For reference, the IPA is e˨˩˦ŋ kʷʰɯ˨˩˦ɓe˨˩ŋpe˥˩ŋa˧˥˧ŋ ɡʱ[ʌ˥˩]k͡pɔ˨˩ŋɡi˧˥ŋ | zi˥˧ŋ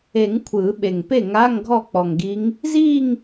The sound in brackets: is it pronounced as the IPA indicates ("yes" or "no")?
no